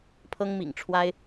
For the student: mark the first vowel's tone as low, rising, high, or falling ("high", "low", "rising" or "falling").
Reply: high